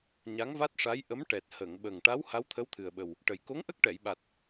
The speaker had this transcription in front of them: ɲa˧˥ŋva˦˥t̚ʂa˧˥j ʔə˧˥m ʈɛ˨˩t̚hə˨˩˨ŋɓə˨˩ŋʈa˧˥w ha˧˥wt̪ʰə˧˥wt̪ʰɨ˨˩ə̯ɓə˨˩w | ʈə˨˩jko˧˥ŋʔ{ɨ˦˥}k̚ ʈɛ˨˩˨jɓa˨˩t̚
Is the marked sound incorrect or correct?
incorrect: ə˦˥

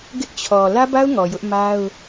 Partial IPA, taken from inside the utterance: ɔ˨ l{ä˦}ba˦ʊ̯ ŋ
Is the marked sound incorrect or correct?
correct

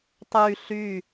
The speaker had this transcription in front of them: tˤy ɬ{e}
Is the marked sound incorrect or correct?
incorrect: y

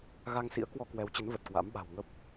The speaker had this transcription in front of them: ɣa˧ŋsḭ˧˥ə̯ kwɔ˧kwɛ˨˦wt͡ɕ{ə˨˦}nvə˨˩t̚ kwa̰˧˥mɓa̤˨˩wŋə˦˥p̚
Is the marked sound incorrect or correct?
correct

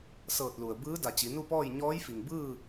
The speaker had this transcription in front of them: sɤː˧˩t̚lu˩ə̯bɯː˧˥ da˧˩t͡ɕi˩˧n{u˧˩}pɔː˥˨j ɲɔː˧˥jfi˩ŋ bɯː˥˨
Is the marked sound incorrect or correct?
incorrect: u˥˨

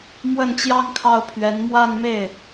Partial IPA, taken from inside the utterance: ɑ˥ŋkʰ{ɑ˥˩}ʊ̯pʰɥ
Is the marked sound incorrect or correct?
correct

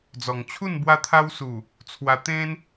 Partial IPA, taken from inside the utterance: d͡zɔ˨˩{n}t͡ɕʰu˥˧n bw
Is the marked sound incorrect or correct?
incorrect: ŋ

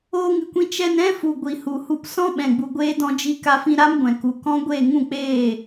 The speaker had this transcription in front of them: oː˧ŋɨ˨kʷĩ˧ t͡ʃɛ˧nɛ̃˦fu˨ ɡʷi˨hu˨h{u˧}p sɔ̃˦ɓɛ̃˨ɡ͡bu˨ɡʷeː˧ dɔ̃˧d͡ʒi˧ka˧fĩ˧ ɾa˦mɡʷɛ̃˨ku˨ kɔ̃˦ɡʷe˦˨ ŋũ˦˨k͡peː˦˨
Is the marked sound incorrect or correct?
correct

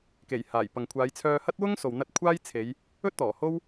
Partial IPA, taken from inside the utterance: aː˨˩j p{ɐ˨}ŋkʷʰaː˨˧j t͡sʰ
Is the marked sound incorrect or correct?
correct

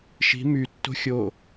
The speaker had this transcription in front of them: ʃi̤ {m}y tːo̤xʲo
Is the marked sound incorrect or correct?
correct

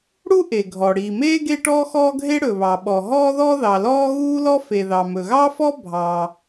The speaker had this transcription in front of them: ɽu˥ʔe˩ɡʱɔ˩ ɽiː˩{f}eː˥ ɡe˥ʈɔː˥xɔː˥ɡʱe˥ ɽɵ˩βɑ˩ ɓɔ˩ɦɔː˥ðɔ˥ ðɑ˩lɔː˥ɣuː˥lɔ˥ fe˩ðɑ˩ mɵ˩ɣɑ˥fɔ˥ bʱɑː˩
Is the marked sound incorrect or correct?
incorrect: m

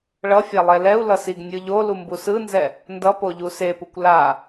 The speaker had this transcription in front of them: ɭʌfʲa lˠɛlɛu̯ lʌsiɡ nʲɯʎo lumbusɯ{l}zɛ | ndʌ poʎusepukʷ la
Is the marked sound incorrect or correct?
incorrect: n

